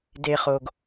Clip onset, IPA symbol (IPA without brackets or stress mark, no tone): d